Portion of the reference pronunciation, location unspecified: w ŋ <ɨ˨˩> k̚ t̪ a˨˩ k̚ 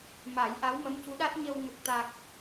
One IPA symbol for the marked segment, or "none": ə˨˩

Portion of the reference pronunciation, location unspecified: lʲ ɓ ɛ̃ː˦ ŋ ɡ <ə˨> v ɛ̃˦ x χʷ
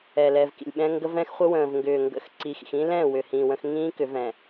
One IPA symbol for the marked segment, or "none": ə˦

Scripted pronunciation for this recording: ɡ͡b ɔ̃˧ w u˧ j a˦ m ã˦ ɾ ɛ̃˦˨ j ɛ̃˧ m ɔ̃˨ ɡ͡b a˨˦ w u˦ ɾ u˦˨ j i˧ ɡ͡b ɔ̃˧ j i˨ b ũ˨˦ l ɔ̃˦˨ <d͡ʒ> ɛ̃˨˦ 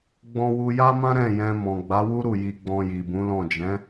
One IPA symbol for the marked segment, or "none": d͡ʒ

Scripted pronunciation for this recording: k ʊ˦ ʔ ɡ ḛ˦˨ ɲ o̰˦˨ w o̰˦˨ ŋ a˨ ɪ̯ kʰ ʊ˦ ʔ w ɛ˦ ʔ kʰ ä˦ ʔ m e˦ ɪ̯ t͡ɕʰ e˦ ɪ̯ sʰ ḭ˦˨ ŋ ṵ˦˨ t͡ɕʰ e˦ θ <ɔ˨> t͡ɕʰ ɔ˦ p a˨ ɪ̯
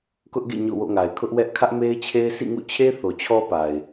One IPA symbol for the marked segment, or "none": o˨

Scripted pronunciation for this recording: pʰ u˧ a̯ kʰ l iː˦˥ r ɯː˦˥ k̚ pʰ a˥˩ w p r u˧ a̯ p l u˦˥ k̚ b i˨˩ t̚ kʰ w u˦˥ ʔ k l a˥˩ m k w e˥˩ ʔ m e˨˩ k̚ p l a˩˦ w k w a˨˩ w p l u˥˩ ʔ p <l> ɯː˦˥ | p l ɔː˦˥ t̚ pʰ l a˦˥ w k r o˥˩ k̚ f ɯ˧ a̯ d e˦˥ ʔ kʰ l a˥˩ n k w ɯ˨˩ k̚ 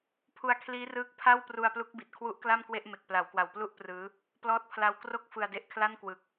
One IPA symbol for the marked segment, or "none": r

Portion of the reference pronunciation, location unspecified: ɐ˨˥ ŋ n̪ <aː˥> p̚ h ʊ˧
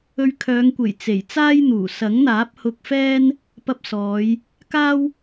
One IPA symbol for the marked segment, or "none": aː˨˥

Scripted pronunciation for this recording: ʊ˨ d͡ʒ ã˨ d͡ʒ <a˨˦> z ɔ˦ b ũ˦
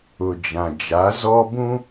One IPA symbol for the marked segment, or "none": a˨˦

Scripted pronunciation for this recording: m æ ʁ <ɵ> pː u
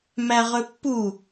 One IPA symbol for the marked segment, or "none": ɵ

